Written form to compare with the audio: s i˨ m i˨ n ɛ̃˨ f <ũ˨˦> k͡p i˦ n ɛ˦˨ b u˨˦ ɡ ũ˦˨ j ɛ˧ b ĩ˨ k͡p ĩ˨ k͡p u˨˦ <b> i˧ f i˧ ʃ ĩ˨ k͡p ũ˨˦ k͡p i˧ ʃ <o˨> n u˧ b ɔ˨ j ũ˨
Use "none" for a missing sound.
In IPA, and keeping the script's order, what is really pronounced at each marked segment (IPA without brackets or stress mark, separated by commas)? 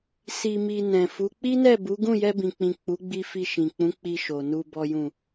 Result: u˨˦, ɡ͡b, o˨